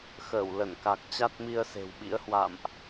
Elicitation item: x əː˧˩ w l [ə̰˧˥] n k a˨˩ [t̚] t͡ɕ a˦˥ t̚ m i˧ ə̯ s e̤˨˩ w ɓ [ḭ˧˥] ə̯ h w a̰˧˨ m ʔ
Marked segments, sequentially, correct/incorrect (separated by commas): incorrect, incorrect, correct